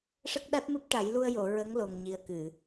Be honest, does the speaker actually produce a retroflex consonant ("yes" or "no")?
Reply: yes